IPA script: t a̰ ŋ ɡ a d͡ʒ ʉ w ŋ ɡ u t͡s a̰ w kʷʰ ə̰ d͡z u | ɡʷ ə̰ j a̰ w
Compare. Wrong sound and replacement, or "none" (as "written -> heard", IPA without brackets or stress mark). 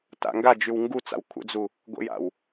none